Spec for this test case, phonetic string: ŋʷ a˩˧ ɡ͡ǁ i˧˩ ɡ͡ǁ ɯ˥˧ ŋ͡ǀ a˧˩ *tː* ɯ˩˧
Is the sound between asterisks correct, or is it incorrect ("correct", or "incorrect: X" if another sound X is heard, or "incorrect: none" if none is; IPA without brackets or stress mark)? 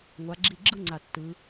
correct